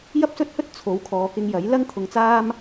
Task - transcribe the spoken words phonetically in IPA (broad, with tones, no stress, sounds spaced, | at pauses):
j ɐ˥ p̚ s ɵ˥ t̚ h ɵ˥ t̚ t͡sʰ o˨˥ w kʰ ɔː˨˧ k ɪ˧ ŋ j ɐ˨˥ j l ɐ˥ ŋ t̪ʰ ʊ˧ ŋ t͡s aː˥ m